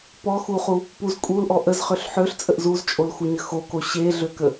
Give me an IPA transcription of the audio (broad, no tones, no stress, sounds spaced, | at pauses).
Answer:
p ɔ x u χ u | p u z kʼ u l ʔ ɔ ʔ ə z χ ø ɬ ħ ø ɬ t͡sʼ ə ʔ z u z t͡ʃʼ o l x u ɲ ə x o k o ɕ e ɮ ø k ə